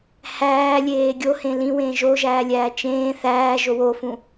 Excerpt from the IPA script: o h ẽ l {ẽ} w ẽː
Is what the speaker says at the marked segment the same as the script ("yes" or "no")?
no